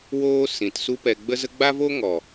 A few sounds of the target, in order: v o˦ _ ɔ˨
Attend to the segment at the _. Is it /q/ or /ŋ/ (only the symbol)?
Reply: ŋ